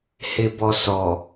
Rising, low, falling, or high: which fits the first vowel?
low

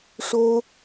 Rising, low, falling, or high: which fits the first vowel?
high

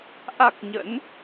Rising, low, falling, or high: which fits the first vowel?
low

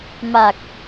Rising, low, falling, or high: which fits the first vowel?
low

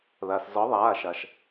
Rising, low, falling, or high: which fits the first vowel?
low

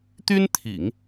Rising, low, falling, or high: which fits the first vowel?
high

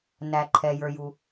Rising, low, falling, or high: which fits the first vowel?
low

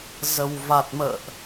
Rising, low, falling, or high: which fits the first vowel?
low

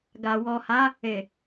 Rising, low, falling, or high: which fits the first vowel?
low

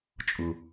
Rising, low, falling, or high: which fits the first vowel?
low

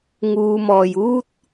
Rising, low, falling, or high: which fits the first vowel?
low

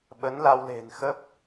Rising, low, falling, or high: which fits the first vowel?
rising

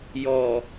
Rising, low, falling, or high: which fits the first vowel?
low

